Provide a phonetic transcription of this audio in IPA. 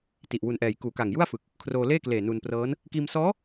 ti˨˩ʔ wu˨˩nʔɛː˨˩j kuː˨˩ka˨˩ŋju˥˩a̯fɯ˨˩k̚ | kʰroː˧leː˥˩kleː˨˩ nu˧nprɤː˦˥n | kiː˧msɔː˦˥

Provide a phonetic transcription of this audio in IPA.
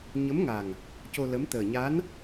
ɲə˧˥mŋa˨˩ŋ | co˧lə˧˥m t̪əː˨˩ɲa˧˥n

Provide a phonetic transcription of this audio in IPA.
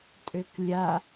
tʼøklʲa

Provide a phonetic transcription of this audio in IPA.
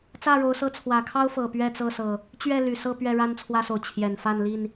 t͡sä˥˨ɻo˨˦ʊ̯ sɤ˦ t͡sʰwä˨˩kʰɑ˦ʊ̯ fɤ˨˩ pɥɛ˥˨t͡sɤ˥˨sɤ˨˩ | t͡ɕɥɛ˥˨ ly˨˩sɤ˥˨ pɥɛ˥˨ɻa˦nt͡sʰwä˦so˨ʊ̯ t͡ɕʰjɛ˨˩nfa˥˨nli˥˨n

